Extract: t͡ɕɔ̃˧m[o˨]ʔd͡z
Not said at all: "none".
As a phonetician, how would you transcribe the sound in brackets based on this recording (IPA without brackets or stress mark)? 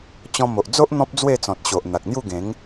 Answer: o˨